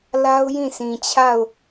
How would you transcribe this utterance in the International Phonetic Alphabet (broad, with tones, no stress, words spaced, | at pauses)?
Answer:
la˦ʊ̯jĩ˦˨sʰĩ˨t͡ɕʰa˦˨ʊ̯